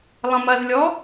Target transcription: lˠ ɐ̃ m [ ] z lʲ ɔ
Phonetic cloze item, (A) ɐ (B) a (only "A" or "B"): A